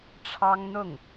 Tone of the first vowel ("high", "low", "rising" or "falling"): high